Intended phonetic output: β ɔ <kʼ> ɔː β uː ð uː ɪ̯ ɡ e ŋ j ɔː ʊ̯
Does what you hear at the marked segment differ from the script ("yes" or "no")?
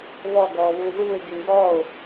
yes